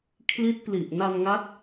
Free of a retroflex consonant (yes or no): yes